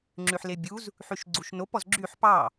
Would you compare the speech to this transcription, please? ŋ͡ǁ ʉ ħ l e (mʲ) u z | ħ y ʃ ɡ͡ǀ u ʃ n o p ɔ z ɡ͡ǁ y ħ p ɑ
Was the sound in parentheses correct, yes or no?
no